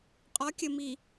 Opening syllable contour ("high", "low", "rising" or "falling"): rising